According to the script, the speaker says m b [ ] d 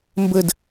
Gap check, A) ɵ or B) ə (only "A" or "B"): B